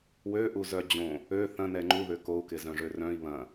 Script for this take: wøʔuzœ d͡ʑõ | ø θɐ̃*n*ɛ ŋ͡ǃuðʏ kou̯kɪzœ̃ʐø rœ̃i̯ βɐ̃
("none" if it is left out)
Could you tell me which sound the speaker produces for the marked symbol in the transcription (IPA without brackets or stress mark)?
n